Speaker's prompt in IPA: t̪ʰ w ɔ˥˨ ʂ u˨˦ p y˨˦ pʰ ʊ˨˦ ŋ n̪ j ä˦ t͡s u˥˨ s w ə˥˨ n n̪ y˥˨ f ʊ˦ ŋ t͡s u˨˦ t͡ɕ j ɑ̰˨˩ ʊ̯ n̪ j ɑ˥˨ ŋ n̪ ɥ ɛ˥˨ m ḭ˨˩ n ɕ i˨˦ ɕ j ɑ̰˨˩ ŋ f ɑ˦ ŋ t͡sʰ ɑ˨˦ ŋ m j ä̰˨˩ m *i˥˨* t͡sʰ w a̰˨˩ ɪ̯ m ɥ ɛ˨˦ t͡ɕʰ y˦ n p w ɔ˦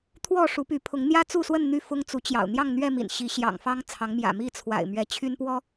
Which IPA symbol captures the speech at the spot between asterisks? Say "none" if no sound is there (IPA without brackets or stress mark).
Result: i˥˨